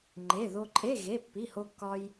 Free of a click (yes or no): no